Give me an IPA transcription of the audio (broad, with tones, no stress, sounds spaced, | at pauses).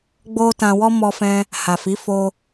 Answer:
ɡ͡b o˦ t ã˧ w ɔ˦ m ɔ˧ f ɛ̃˧ | h a˨ f i˨˦ f o˧